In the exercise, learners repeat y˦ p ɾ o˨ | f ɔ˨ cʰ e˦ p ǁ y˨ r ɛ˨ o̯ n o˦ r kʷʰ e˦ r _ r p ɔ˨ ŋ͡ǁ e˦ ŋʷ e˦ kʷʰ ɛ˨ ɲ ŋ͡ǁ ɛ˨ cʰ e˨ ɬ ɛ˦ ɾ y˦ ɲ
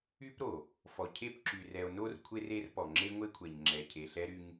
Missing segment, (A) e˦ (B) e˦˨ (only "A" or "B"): A